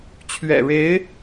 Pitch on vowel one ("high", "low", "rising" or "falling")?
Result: low